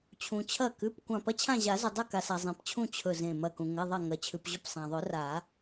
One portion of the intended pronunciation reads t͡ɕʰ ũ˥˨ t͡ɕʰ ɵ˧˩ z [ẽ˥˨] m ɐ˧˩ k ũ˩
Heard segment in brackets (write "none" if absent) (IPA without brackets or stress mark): ẽ˧˩